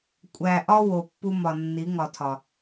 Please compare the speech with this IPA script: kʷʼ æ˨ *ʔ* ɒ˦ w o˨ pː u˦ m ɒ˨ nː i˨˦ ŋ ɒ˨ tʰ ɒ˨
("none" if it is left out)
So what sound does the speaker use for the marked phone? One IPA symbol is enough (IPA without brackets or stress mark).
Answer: ʔ